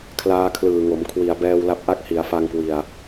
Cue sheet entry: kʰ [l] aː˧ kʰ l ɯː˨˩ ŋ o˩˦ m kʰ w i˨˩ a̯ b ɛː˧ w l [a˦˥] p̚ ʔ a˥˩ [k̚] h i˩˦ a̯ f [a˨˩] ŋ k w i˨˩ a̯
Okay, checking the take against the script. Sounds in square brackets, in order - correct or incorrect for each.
correct, correct, correct, incorrect

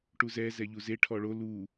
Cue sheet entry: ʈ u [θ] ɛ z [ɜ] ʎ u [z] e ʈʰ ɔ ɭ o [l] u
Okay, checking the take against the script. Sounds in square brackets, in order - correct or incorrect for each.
incorrect, incorrect, correct, correct

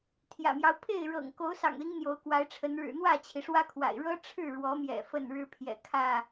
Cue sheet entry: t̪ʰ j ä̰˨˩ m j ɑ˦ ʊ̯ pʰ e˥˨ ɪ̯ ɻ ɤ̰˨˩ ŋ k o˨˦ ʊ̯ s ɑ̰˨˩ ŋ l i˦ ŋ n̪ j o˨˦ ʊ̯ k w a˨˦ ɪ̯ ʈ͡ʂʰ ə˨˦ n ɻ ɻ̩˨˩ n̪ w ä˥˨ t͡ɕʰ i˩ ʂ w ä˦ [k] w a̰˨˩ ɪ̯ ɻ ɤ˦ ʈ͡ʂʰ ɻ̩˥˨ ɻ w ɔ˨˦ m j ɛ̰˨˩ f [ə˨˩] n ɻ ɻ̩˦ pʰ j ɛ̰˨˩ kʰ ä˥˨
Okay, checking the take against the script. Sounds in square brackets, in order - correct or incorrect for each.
incorrect, incorrect

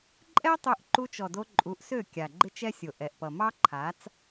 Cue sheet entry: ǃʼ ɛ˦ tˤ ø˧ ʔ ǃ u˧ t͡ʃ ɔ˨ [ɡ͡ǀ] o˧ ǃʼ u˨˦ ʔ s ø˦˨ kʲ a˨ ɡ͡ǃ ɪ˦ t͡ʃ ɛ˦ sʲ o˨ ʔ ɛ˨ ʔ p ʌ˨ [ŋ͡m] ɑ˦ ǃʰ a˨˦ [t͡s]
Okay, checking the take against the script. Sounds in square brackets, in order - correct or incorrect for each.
incorrect, incorrect, correct

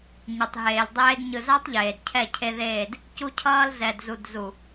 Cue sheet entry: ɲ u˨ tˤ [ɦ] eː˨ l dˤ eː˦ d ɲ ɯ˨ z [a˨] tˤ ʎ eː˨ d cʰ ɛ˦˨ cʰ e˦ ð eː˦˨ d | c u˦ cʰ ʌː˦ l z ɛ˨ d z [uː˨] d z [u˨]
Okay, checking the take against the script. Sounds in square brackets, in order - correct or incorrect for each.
correct, incorrect, incorrect, correct

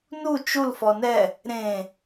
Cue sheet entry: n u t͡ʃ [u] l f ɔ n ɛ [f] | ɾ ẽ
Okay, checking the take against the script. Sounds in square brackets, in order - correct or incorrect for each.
correct, incorrect

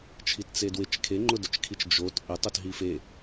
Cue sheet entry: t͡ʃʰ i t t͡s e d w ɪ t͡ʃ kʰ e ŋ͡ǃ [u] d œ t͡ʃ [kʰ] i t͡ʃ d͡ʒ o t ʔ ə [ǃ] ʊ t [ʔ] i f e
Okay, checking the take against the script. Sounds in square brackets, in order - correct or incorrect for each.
incorrect, correct, incorrect, incorrect

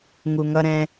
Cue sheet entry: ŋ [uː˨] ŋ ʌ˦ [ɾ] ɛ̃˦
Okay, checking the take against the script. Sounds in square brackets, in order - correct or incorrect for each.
incorrect, correct

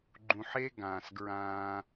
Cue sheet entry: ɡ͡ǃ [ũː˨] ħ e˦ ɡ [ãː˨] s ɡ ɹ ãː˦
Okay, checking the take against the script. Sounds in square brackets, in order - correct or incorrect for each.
incorrect, correct

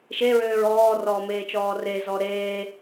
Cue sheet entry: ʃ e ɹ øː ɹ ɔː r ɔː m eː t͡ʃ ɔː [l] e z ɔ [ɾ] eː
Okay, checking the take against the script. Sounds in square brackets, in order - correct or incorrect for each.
incorrect, correct

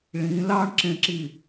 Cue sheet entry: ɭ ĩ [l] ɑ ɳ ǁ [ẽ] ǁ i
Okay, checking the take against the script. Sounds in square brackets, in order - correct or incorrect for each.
correct, correct

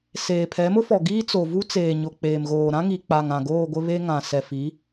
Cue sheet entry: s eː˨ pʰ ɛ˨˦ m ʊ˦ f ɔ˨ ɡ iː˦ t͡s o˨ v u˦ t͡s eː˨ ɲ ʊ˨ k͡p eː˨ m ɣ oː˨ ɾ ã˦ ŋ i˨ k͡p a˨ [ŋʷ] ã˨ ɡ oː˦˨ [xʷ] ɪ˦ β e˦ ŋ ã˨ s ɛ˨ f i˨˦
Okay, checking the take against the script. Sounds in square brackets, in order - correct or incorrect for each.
incorrect, incorrect

